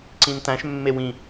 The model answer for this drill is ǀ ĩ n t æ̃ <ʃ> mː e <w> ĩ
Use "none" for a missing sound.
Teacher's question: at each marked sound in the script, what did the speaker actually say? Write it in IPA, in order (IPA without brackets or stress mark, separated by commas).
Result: ʃ, w